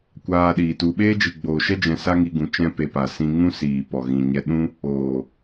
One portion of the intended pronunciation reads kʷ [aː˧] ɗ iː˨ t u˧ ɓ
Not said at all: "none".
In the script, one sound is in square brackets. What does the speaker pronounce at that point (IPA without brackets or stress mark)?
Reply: aː˧